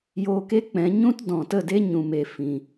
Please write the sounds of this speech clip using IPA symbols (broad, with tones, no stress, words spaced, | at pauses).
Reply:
joː˧ke˦k͡pɛ̃˨˦ ɲũ˦tdɔ̃˨tə˦˨de˦ ɲũ˨me˨ fĩ˨